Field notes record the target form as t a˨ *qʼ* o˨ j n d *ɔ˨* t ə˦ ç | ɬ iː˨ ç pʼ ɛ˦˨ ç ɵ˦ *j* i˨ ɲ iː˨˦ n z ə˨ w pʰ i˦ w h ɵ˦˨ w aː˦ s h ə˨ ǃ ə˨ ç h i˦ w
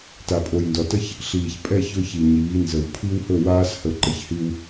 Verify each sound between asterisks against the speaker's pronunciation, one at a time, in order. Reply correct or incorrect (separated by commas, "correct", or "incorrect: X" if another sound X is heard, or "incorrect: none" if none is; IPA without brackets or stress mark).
incorrect: pʼ, correct, incorrect: ç